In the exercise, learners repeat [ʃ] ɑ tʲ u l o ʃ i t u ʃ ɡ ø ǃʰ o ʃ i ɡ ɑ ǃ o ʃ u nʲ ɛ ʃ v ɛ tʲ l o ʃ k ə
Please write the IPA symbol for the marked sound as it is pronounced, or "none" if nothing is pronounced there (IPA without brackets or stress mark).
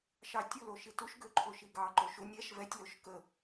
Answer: ʃ